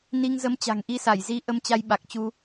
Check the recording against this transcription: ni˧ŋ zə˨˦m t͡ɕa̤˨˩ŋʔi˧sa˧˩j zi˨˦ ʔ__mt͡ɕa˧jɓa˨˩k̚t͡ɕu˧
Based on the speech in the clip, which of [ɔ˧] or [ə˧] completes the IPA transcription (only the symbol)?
ə˧